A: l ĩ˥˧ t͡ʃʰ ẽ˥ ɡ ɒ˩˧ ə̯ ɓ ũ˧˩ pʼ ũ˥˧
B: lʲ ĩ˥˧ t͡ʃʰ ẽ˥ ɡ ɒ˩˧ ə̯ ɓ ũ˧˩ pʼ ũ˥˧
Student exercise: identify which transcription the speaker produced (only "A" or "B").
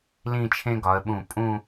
A